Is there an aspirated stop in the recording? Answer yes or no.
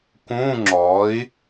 no